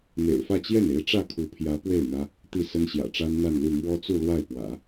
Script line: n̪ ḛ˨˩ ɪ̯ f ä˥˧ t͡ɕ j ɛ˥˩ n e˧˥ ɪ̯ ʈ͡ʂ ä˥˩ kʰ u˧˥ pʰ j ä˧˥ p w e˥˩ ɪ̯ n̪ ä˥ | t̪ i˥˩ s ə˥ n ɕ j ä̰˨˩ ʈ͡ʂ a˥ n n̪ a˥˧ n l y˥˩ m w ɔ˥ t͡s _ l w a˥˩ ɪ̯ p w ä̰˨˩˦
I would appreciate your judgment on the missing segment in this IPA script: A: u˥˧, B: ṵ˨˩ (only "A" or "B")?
A